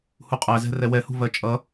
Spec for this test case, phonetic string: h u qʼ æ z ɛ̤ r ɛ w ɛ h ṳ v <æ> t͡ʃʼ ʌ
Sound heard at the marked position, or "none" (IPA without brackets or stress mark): ɜ